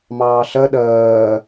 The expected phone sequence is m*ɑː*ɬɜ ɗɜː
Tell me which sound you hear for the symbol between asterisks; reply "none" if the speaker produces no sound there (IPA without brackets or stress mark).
ɑː